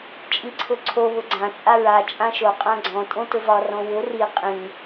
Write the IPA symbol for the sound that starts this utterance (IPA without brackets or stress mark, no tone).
t͡ʃʼ